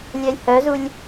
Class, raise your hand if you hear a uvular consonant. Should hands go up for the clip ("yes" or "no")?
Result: no